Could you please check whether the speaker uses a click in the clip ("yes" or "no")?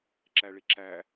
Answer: yes